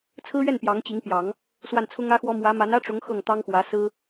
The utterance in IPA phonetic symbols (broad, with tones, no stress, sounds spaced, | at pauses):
t͡sʰ ɹ̩˥ ɥ ɛ˥˩ n p j ɑ˧˥ ŋ t͡ɕ i˧˥ ŋ p j ɑ˨˩˦ ŋ | s w a˥˩ n t͡sʰ ʊ˥ ŋ ä˥ x w ɔ˥ m w ä˧˥ m a˧˥ n ä˥ ʈ͡ʂ ʊ˧˥ ŋ x ɤ˥˩ ŋ t̪ ɑ˥ ŋ x w ä˧˥ s ɹ̩˥